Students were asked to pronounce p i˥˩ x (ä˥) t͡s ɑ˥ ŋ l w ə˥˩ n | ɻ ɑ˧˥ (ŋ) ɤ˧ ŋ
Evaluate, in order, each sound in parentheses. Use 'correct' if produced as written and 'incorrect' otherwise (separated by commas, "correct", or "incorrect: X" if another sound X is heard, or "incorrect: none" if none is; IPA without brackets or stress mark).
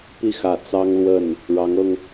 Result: incorrect: ä˨˩, correct